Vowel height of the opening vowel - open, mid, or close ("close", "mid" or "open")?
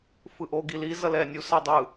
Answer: close